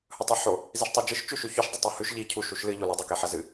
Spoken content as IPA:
h ɵ tˤ i ħ o | z i ʃ tˤ a d͡ʒ ɨ ʃ t͡ʃ ʉ ʃ ʉ ç ʉ ʃ dˤ ɨ tˤ u h ʉ ʃ ʎ i cʰ u ʃ u ʃ l ɨ ʎ o l ɨ dˤ e k e ħ ɐ z ɨ

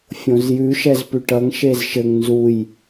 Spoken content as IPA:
fʲ õ z j ʉ ʃ ɛ z p ʉ ʈ ʌ ŋ ʃ e z ʃ ɘ ŋ n z u j

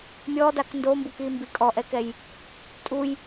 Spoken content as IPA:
mʲ ɔ d a k n d o m b u k i m b i kʼ ɔ ʔ ɛ k ɛ j | tʼ u j

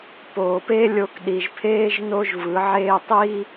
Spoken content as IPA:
p oː˨ p e˦ lʲ o˧ k ɗ i˨ ʒ pʰ eː˦ ʒ n o˦ ʒ v ɯ˨˦ ʕ eː˦ tˤ i˦

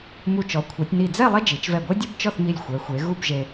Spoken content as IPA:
m u˧˩ t͡ʃ ɔ˩˧ kʷʰ e˩˧ tʲ n i˧˩ d͡z ɛ˥˧ lˠ ɛ˥ d͡ʒ i˩˧ t͡ʃ v ɛ˧˩ ɡʷ e˥ dʲ ɤ˥ b t͡ʃ ɔ˥˧ θ m i˧˩ lʲ xʷ ɛ˩˧ xʷ e˩˧ ɣ u˥˧ b ʒ e˧

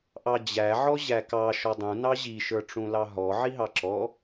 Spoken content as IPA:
ʔ ɑ d͡ʑ æ ʕ ɔ ʑ æ k ɑ ʃ ɔ dˤ ũ n ɑ ʑ i ʃ ə˞ ʈ͡ʂ ũ l ɑ ɦ ɔ ʕ i ɦ ɑ ǁ ɔ

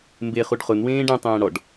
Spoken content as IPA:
m b e χ u ɖ χ ʊ n w ẽː ɖ ẽ tˤ ẽː ɽ ɔ ɖ

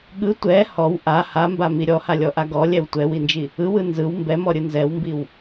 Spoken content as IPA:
ɠ ɯ tʷ ɛ h ɔ w ʔ a h a m b a m i ɾʲ ɔ h a lʲ ɔ ʔ a ɡ ɔ lʲ ɛ w tʷ ɛ w i n d͡ʒ i | ɯ w ɯ n z ɯ w m b ɛ m ɔ ɾʲ ɯ n z ɛ w m b i w

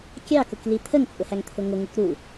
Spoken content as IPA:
kʲ ɑ k ʊ k l i t̪ʰ ə ŋ t͡sʼ ʊ h æ ŋ t̪ʰ ʊ ŋ ʊ ŋ u k ɾ u

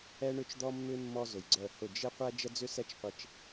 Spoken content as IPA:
ɛ˦ ɳ ʏ˦ t͡ʃ d̪ ɔ˦ mː ʏ˦ mː ɔ˦ z ʊ˨ j ɡ͡ǀ œ˦˨ h ʊ˦˨ d͡ʒ ɪ˦ qʷ ɛ˦ d͡ʒ ə˦ d͡z ʏ˦ s ɛ˦ t͡ʃ qʷ ɪ˧ t͡ʃ

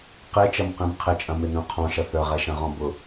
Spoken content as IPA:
q e t͡ʃ ɐ m q ẽ m qʰ ɪ t͡ʃʼ ɐ̃ m ɪ n œ̃ qʰ ɔ̃ ʃ ɐ θ œ ʁ ɛ ʃ ɐ̃ ʁ ɔ̃ b ʊ

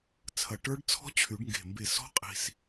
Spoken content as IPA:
t͡sʰ ɐ˧˩ ʈ ə˞˦˥ ɖ t͡sʰ ɔ̤˦˥ t͡ɕʰ y˨˩˦ ɖ ŋ ɡ e̤˧˩ m b e˧˩ s ɔ̤˦˥ qʼ i̤˧ s

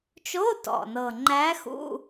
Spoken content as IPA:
t͡ʃ o˧˥˧ t ɔ̰˨˩ n ɤ˨˩ ŋ͡ǃ æ˧˥ x ṵ˧˥˧

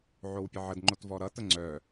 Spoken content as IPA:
ʕ o w pʲ ə ʕ ə d ŋ͡ǃ o t v ɔ ɾ ʌ t ə ŋ͡ǀ œ

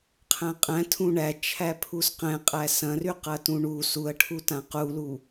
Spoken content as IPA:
qʰ æ̃ qʼ æ̃ tʰ ũ ɳ æ t͡ʃʰ æ pʰ u s q ɛ̃ qʼ æ s ɐ̃ r y q ɐ t ũ ɳ u s u ɐ̯ ʈʰ u t ã q u l u

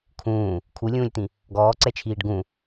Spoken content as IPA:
kʰ ũː | kʰ u lʲ ũː lʲ t̪ ĩ | ɡ ɔː ǀ ɛ t͡ʃʰ iː ɖ ɡ ũ

